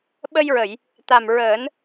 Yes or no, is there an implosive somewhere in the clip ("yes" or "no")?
yes